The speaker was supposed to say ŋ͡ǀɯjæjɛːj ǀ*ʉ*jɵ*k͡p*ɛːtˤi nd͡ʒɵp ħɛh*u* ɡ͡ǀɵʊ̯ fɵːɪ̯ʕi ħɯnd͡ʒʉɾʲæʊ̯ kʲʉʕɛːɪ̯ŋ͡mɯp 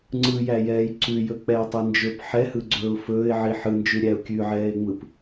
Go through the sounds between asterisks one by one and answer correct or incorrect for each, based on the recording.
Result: correct, correct, incorrect: ɯ

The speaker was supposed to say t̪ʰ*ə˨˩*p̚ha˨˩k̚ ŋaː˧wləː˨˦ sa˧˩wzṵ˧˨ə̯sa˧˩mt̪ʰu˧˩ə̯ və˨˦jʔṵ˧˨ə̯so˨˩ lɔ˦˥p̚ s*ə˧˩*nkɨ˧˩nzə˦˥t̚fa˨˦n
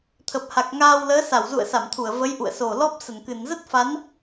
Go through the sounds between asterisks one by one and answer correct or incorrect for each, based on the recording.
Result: correct, correct

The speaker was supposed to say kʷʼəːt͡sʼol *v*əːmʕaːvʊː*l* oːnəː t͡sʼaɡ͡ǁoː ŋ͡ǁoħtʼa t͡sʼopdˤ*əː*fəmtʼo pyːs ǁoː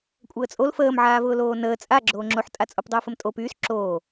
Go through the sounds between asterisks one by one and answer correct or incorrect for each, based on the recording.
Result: incorrect: f, correct, correct

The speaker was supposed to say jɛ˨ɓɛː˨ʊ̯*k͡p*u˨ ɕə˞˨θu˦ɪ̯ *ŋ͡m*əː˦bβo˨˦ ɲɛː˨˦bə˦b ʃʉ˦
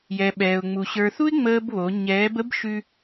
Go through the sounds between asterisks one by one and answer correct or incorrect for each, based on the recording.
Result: incorrect: ŋ͡m, correct

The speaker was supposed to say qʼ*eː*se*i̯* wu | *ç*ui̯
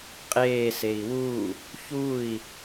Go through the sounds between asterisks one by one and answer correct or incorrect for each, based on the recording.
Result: correct, correct, correct

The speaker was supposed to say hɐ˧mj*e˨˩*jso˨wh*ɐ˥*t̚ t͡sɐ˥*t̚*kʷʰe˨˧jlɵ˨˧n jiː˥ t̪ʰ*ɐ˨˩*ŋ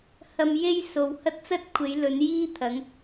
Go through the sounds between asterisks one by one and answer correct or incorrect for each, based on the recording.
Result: incorrect: e˥, correct, correct, incorrect: ɐ˨˧

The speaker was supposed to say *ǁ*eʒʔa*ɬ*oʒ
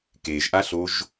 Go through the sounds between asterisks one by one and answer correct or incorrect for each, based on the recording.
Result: incorrect: k, correct

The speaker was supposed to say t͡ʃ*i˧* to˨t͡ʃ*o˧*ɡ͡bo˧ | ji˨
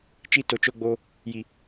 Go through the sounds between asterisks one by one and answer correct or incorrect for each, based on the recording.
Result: correct, correct

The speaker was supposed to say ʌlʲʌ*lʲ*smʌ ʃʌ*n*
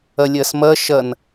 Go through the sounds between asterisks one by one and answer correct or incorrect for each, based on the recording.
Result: incorrect: none, correct

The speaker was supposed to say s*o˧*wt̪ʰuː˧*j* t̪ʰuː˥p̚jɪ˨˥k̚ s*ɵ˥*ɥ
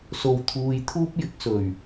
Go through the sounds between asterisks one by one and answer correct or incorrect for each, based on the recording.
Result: correct, correct, incorrect: ɵ˨˩

